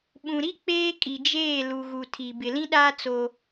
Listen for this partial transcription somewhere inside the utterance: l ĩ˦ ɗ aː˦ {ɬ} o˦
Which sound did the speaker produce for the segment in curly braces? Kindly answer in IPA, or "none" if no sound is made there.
t͡s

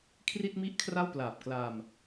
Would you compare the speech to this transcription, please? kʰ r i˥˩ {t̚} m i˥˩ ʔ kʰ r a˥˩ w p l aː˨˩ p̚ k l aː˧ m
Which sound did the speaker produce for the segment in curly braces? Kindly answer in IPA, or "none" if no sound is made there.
t̚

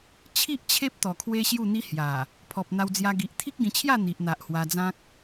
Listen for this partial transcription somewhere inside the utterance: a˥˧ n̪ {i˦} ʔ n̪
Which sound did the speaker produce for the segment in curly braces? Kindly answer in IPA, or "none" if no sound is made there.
i˨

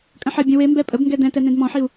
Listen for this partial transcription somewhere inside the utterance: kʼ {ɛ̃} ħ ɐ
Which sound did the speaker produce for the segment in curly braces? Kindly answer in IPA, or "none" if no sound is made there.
ə̃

